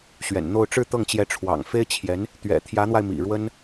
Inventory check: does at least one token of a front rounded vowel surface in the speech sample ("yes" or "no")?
no